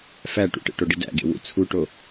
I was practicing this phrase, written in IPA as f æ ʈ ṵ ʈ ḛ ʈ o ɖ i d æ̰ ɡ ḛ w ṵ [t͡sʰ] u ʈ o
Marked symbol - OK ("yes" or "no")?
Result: yes